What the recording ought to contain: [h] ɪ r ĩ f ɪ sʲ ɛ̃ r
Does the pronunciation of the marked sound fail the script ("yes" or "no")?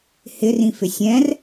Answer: no